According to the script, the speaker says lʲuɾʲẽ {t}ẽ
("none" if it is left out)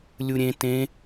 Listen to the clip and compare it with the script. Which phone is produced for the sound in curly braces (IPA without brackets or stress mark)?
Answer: t